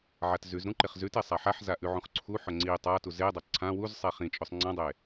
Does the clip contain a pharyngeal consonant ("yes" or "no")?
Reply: yes